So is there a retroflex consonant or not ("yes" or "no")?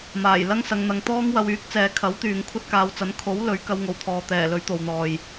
no